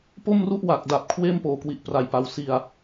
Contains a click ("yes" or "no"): no